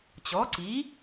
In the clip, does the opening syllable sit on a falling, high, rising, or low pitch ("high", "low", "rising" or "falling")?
rising